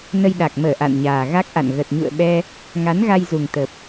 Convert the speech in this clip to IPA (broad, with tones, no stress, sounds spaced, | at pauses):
n ə˧ j ɗ a˨˩ k̚ m əː˧˩ ʔ a̰˧˨ n ɲ aː˨˩ ɣ a˦˥ k̚ ʔ a̰˧˨ n ɣ ə˨˩ t̚ ɲ ṵ˧˨ ə̯ ɓ ɛ˧ | ŋ a˨˦ n ɣ a˧ j z u˨˩ ŋ t̪ ə˨˩ p̚